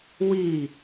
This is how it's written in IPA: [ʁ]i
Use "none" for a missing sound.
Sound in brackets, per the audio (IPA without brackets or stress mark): w